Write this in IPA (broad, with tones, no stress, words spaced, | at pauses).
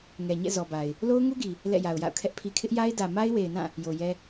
ŋɛ˨ɲɛ̰˦˨zɔ˨ba˨ɪ̯ | lo˦ʊ̯ŋu˦ɡi˨ | lɛ̰˦˨ja˨ʊ̯ja̰˦˨ʊ̯kʰɛ˦ʔ pʰi˨kʰɪ˦ʔja˦ɪ̯dä˨ ma˦ɪ̯we˨ɪ̯nã˦˨ | jo˨jɛ˦